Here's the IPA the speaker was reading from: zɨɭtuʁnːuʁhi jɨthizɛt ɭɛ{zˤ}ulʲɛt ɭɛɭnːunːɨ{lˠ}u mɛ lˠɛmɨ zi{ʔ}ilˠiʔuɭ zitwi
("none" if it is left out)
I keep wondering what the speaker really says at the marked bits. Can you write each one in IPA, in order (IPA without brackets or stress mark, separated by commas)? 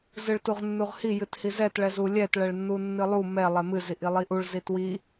z, lˠ, ʔ